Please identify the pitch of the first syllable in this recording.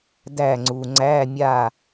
falling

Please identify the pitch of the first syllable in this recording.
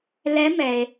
rising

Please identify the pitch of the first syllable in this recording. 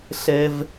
low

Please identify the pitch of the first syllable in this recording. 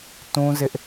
high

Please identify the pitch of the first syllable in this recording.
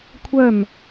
falling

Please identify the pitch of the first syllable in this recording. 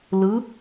rising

